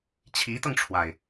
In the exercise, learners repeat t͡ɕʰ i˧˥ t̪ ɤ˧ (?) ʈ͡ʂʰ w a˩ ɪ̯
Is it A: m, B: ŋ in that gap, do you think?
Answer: B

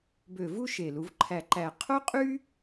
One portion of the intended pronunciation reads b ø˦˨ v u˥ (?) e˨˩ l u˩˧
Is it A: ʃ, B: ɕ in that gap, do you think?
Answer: A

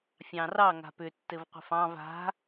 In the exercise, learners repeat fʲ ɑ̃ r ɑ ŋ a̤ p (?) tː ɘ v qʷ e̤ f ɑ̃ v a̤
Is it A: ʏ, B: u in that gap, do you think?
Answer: A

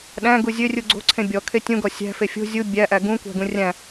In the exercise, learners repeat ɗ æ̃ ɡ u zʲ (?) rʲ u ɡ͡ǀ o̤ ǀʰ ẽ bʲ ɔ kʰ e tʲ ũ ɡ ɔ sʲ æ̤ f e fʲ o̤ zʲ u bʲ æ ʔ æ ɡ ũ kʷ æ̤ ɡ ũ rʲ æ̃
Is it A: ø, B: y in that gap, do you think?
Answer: A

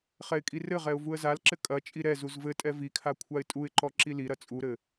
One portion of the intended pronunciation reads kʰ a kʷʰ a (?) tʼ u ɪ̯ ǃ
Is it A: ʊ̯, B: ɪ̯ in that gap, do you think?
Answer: B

